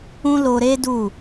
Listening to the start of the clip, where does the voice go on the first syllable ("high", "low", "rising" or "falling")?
high